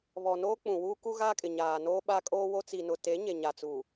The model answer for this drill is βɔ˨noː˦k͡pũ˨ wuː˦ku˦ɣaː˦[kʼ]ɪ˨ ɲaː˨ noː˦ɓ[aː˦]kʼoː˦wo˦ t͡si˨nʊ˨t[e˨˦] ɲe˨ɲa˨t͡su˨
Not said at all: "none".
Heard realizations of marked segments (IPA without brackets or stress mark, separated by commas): kʼ, a˦, e˨˦